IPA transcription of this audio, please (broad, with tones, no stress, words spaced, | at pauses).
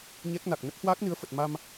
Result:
ɲɛ˦˥k̚na˨˩k̚ nə˦˥p̚hwaː˦˥k̚nɨ˨˦ə̯fə˨˩t̚ ma˧m